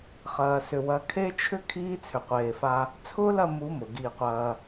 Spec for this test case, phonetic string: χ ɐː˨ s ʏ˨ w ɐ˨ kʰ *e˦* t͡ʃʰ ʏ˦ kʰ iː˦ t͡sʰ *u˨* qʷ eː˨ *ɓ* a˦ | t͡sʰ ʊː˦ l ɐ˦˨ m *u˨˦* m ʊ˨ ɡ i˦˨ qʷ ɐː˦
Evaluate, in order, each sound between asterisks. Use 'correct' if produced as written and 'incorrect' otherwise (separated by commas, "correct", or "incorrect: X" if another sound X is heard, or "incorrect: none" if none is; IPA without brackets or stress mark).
correct, incorrect: ʏ˨, incorrect: f, correct